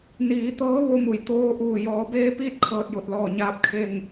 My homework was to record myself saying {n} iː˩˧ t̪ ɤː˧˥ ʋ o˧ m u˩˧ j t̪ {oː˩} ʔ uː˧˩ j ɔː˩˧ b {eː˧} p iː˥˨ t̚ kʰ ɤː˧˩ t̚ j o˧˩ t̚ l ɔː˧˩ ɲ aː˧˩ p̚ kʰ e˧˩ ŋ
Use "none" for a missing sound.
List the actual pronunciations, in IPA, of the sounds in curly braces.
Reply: n, oː˧, eː˧

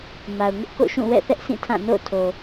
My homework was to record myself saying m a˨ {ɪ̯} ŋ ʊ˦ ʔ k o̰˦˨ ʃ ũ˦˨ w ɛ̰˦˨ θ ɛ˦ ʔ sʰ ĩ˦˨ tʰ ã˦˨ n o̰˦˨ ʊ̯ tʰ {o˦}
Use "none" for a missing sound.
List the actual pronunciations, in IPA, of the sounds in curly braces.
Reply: ʊ̯, o˨

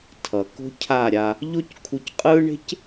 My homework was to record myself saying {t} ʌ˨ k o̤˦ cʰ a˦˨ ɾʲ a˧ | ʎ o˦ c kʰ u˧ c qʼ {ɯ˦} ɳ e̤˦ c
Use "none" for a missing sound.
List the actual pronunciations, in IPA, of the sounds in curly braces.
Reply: tʰ, ɯ˦

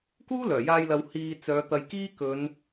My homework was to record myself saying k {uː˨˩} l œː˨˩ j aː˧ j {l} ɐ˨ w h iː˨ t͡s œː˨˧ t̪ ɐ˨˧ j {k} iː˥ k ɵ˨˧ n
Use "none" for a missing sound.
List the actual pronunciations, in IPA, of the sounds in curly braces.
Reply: uː˥, l, k

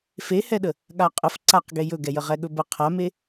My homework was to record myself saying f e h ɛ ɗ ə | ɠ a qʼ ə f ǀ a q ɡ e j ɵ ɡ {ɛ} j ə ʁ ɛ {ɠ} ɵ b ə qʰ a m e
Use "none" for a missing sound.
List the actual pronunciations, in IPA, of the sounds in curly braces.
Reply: ɛ, ɠ

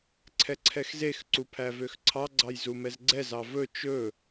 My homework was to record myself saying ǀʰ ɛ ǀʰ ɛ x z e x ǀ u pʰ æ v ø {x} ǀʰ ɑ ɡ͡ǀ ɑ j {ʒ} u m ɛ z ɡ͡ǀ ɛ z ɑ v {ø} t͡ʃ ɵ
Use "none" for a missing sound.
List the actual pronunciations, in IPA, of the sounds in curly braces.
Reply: x, z, ɵ

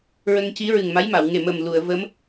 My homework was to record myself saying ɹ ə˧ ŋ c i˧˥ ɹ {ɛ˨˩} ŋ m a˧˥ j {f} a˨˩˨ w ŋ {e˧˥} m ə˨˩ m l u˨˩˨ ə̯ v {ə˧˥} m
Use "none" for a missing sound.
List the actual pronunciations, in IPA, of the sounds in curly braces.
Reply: ɨ˨˩, m, e˨˩, ə˧˥

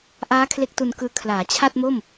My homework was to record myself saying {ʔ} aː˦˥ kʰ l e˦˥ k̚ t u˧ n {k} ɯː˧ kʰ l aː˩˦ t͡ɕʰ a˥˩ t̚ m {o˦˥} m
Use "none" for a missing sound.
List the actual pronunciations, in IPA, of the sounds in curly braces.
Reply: ʔ, k, o˥˩

